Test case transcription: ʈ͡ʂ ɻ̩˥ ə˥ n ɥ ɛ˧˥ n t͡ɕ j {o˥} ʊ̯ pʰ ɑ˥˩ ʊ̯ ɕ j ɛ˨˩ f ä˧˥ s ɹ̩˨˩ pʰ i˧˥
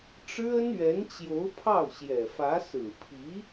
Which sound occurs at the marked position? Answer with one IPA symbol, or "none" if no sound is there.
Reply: o˧˥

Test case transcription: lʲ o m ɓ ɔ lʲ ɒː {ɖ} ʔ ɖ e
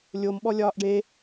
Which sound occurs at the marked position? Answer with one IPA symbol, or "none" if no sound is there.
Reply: none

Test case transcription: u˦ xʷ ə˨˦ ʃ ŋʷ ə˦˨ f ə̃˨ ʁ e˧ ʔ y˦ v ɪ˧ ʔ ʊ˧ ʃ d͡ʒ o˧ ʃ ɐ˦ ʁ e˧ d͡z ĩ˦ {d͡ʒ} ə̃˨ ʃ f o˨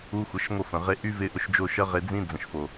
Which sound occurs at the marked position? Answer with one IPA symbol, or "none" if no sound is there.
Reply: d͡z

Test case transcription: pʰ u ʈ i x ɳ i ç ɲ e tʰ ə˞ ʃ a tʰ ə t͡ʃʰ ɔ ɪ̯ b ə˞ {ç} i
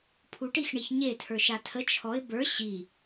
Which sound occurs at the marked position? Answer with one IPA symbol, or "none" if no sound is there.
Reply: ɕ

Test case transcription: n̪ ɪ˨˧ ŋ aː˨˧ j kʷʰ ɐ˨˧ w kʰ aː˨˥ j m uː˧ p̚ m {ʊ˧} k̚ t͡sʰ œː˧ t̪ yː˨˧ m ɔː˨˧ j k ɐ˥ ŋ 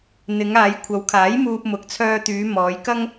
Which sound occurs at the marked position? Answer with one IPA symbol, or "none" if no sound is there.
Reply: ʊ˨˥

